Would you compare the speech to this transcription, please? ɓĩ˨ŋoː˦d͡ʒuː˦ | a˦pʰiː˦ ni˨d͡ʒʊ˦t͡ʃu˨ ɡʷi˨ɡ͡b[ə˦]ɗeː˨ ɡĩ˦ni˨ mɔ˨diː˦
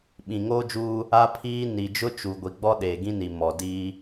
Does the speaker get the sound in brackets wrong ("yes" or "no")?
yes